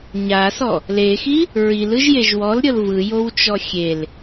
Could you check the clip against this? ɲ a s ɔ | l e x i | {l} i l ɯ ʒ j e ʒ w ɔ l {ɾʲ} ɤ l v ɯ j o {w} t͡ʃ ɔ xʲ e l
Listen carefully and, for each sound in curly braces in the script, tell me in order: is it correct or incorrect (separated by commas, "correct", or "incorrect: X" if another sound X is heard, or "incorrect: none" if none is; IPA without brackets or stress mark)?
incorrect: ɹ, correct, correct